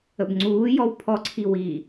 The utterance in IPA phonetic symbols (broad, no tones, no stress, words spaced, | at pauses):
əbŋ͡ǀuːjɔw pʰɔǀʰi wi